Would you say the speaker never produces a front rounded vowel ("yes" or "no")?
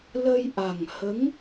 yes